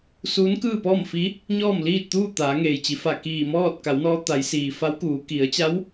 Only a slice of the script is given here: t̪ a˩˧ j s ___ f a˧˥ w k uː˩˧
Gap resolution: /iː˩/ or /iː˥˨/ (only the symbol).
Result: iː˩